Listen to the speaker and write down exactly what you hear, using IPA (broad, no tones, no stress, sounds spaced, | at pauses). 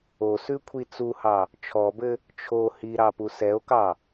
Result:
o s ʉ kʷʰ i t͡s u h ɑ | t͡ʃʰ ɔ b ɘ | t͡ʃʰ o h i ɾ ɑ p u s ɛ o̯ k ɑ